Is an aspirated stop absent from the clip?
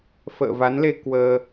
yes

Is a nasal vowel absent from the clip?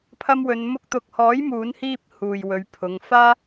yes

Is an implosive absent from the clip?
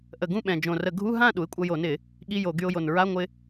no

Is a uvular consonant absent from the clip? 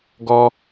yes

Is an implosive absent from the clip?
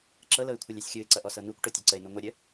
yes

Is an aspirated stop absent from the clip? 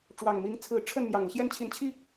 no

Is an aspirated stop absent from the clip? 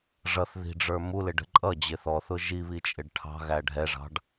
no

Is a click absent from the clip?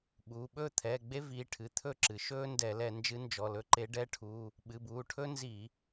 no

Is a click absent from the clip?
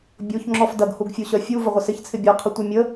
no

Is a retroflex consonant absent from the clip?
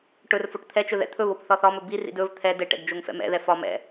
no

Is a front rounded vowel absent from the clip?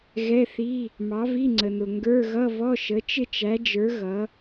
yes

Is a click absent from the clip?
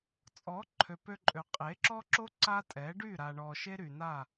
no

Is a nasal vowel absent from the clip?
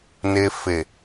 yes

